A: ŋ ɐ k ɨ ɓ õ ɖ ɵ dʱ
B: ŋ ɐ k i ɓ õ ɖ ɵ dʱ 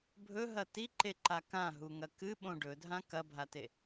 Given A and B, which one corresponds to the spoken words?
A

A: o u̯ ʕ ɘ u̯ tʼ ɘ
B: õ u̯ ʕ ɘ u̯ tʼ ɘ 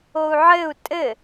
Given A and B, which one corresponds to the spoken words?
A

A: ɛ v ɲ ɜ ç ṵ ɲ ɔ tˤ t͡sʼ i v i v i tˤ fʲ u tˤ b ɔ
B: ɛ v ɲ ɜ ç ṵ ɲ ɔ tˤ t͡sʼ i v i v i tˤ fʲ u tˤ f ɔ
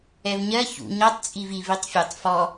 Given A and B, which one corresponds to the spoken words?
B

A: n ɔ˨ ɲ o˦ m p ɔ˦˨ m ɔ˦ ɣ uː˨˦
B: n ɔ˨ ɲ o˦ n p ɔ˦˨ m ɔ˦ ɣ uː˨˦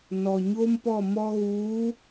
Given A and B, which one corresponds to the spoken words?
A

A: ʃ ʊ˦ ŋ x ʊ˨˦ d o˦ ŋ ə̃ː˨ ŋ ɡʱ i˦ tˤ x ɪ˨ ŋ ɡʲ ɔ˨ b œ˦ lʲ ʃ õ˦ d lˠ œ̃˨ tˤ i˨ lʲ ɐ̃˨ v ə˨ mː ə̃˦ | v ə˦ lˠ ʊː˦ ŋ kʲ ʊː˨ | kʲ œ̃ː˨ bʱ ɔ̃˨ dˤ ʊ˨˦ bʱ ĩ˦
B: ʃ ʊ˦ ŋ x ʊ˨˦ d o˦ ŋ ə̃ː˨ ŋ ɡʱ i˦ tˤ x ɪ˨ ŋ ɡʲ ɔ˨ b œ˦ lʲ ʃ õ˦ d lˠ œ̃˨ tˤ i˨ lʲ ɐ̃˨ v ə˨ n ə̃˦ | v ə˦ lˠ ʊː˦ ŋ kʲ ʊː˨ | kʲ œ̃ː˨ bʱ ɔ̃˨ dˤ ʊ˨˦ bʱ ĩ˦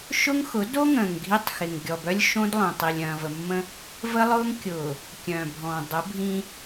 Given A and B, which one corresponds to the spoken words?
A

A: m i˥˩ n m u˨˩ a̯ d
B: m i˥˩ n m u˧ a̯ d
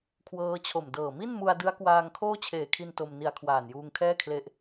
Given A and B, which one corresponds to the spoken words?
B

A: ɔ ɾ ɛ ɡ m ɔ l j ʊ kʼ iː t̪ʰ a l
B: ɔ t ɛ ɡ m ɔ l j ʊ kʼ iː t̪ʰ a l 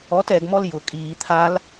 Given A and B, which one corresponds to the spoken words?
B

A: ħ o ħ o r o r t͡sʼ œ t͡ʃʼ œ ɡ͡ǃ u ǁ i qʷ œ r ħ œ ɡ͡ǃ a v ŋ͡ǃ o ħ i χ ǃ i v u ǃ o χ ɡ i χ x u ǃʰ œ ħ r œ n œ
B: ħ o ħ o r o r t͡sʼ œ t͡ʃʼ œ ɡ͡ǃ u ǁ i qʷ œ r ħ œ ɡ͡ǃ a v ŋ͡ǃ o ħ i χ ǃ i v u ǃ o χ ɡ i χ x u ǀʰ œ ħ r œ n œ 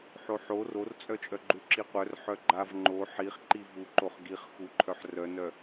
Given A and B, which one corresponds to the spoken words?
A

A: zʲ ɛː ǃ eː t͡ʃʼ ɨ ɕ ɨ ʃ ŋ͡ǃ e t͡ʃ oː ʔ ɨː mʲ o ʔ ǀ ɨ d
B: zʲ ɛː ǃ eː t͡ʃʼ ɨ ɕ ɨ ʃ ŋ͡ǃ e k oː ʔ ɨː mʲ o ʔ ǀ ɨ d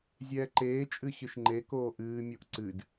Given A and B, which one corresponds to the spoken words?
B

